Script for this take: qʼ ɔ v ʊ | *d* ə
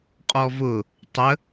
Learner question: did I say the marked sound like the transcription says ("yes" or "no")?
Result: no